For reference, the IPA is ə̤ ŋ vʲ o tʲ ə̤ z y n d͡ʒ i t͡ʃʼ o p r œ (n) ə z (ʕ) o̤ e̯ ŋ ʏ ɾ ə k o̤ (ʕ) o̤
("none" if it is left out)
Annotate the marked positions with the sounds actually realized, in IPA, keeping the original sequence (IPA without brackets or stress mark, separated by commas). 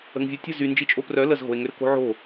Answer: l, ɣ, ʕ